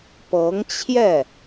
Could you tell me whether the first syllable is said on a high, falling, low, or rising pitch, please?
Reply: rising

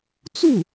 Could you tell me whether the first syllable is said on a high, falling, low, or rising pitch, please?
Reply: falling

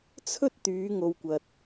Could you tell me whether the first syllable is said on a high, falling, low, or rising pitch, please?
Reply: high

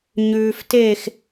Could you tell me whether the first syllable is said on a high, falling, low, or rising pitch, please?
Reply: low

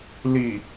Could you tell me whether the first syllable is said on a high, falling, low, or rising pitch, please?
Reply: low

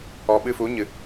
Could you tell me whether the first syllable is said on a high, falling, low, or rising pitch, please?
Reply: low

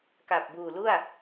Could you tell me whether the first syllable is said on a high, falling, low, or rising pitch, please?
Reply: low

